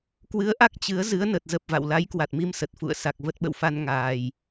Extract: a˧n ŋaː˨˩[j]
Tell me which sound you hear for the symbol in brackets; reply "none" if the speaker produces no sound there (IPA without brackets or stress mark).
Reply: j